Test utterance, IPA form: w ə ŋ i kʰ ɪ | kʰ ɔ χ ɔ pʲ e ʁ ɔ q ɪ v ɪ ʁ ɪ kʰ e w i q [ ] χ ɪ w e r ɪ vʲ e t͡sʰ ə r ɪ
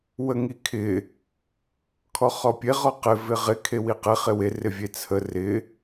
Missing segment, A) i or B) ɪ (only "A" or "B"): B